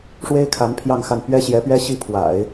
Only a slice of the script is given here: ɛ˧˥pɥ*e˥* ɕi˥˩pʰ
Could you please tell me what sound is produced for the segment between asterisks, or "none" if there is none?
ɛ˥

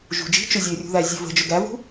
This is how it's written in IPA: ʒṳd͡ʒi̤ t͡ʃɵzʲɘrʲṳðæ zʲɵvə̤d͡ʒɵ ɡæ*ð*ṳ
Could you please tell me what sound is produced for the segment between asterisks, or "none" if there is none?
v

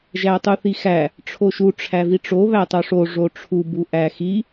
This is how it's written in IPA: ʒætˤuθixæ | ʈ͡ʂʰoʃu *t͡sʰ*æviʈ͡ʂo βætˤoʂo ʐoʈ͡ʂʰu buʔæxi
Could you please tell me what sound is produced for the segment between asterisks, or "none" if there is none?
ʈ͡ʂʰ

